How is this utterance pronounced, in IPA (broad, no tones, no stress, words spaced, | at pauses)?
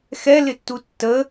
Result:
xɛlɪtːu tːə